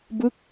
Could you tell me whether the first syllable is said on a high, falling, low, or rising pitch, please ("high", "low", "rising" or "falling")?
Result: falling